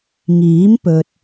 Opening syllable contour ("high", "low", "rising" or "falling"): rising